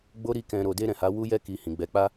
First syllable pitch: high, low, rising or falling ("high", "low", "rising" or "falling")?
high